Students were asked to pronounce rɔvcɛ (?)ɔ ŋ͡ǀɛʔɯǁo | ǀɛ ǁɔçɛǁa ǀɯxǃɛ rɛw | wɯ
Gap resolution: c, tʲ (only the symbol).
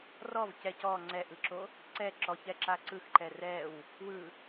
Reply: c